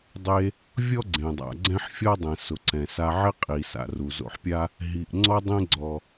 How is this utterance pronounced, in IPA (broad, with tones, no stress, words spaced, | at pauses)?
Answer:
dˤe˧ | vʲɔ˥ ɡ͡ǀẽ˩dˤa̰˩ ɡ͡ǀɛ̃˥ħfʲɔ˥dˤɛ̃˩ sʊ˩ǀɛ̃˩sa˧ʕɪ˥ qʼi˩ sa̰˩ru˩zo̰˧ħpʲa˥ | ɦi˩ʔ ŋ͡ǀɔ˥dˤẽ˥ɡ͡ǀɔ˩